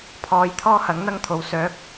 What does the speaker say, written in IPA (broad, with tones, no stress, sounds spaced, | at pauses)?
pʰ ɔː˨ j t̪ʰ ɔː˥ h ɐ˨˥ ŋ n̪ ɐ˥ ŋ t̪ʰ o˨˥ w s œː˨˥ k̚